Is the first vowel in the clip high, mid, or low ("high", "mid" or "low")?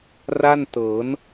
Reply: low